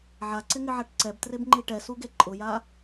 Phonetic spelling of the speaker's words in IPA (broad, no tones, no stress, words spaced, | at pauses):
ʕaǀɪŋɪʕaʈ ǀɛbtrebŋ͡ǃi ʈɛsuɡe ǃʼʊja